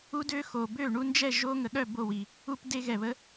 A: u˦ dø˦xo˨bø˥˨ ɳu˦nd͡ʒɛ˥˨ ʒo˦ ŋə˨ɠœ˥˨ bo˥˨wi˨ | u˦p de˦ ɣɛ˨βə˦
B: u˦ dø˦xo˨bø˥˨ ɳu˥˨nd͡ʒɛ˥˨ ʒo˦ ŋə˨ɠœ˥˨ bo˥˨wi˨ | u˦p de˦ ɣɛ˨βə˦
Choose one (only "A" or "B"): A